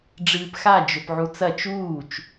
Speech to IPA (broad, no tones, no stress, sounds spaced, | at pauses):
ɖ͡ʐ ɨː p x a d͡ʒ ɵ p ʕ u t͡s ɐ t͡ʃ uː t͡ʃ